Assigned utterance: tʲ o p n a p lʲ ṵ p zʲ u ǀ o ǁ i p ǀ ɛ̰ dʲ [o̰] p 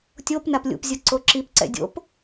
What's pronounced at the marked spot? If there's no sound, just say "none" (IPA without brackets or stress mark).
o̰